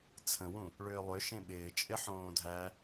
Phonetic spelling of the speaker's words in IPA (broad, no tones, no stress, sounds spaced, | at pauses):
t͡sʰ ə̃ w ũ | ɭ ʏː lˠ ʏ ʃ ẽ ɓ ɪː t͡ʃʼ ɪ ħ õː dʱ æ